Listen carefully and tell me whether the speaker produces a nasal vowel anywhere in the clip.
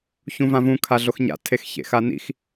yes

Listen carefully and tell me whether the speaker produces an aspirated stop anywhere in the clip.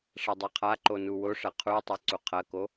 yes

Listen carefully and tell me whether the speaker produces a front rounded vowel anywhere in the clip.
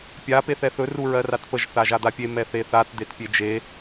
no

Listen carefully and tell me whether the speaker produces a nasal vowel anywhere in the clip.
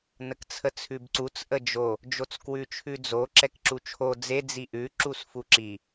no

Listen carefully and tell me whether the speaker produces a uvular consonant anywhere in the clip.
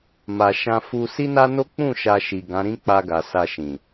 no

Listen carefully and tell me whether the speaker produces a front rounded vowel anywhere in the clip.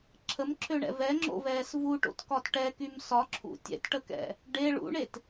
yes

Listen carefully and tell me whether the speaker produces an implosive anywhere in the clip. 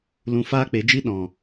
yes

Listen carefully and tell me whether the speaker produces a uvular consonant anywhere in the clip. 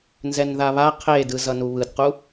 yes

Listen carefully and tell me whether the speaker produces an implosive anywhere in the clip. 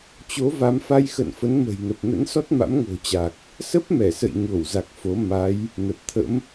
no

